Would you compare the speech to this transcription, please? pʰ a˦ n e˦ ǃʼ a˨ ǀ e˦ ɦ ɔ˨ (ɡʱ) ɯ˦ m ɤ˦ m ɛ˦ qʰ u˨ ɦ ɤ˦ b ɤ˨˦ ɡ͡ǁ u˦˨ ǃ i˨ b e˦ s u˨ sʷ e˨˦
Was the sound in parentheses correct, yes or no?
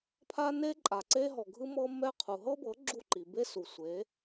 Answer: yes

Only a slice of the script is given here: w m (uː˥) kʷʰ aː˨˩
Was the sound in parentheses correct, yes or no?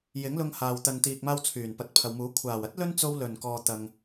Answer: no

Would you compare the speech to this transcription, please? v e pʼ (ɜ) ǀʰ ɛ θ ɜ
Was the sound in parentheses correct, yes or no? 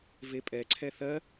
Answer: no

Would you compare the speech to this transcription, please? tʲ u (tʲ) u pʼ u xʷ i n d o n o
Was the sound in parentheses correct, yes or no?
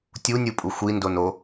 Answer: no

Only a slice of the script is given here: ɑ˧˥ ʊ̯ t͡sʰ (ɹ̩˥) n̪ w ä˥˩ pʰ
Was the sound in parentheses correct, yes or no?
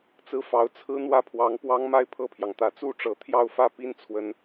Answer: yes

